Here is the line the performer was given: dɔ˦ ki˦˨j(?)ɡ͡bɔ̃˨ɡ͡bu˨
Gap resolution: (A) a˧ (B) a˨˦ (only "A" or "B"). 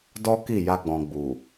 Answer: A